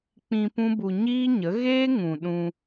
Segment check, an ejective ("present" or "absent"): absent